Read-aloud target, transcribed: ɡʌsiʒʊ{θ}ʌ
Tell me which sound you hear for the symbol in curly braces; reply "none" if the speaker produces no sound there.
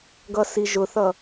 θ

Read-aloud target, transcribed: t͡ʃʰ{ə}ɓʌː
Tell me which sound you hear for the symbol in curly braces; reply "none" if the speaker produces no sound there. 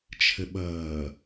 ə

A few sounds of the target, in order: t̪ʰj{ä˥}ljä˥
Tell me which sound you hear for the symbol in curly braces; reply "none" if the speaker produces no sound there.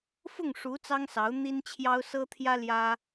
ä˥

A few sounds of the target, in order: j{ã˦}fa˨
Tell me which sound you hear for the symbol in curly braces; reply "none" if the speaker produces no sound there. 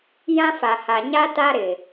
ã˦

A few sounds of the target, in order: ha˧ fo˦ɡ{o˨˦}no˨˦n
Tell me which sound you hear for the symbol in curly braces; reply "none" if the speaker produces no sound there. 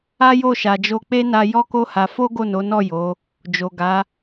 o˦˨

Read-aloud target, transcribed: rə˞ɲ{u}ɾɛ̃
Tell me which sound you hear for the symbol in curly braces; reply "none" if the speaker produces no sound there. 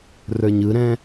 ɯ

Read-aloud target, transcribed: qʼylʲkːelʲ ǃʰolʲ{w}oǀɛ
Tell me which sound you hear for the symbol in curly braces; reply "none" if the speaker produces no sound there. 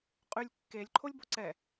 b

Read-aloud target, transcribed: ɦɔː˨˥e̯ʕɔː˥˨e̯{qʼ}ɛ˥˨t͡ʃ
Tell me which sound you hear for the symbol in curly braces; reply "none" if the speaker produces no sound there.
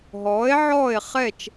χ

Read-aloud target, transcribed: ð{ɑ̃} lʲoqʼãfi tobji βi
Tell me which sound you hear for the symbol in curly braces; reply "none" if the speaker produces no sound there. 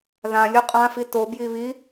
ã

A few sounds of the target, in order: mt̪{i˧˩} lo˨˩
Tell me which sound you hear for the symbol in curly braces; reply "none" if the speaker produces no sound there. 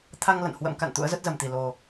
i˧˩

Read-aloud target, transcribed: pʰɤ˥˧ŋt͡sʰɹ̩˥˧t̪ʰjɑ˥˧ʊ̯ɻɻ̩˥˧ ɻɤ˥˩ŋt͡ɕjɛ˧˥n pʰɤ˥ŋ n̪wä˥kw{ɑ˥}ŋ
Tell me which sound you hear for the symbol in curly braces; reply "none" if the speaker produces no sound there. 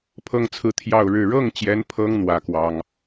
ɑ˥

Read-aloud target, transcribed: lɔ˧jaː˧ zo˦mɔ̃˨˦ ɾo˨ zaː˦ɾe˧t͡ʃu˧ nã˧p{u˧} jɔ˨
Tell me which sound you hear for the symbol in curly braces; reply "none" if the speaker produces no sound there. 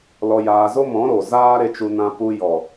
u˧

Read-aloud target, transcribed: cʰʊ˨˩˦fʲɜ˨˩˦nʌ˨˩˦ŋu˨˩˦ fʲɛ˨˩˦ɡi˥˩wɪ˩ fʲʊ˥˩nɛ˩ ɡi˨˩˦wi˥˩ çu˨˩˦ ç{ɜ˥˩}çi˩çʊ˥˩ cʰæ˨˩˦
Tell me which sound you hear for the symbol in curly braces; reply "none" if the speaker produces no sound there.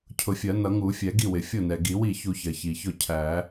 ɜ˩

